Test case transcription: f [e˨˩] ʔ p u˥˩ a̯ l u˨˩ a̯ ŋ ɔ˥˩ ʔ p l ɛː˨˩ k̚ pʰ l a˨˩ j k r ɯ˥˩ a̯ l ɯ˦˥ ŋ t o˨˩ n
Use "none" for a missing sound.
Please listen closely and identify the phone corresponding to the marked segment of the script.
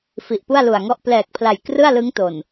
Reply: i˨˩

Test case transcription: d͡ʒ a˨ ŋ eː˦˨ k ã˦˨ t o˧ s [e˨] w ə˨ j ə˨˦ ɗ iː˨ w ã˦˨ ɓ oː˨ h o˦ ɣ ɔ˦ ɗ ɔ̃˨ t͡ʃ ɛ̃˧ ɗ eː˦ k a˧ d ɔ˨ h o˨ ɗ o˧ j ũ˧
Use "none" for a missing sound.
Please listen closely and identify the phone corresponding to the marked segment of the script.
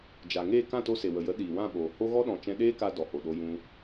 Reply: e˨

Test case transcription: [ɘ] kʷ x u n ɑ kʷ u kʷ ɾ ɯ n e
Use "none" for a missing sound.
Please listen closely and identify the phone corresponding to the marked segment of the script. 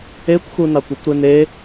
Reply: e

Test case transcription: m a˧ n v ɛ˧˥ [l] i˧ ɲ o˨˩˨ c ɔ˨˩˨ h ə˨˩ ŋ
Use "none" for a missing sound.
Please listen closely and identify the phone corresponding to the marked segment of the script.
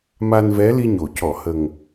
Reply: l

